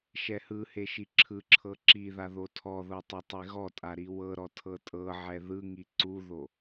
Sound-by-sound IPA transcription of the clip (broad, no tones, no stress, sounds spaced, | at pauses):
ʃ ɛ h ɯ h e ʃ i ǁʰ ɯ ǁʰ ɤ ǁ i ð a ð o tʰ ɔ ð ɤ tˤ ɤ tˤ e ɣ ɔ tʼ a ɾ i w ɤ ɾ ɔ tʰ ɤ tʼ ɤ ʕ ɛ ð ɯ ŋ i ǀ u ð o